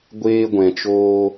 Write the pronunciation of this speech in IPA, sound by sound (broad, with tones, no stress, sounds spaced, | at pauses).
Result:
ɡʷ eː˦ ɡʷ ɛ̃˨ t͡ʃ oː˧